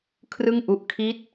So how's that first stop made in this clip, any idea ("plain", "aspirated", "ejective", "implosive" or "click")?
aspirated